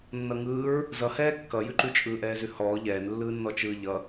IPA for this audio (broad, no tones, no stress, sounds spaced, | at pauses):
nː ʌ ŋ ɯː ɹ | z ʌ h ɛː kː ʌ j ʉ ǃ ʉ t͡ʃʼ ɯː ʔ ɛː z ʉ h ɔː ʎ ɛː n lː ɯː nː ɔ t͡ʃ ɯː ʎ ʌ